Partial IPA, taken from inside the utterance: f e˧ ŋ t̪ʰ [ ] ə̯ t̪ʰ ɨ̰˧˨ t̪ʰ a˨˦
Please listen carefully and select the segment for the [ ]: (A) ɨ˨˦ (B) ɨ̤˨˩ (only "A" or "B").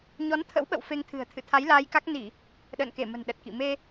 B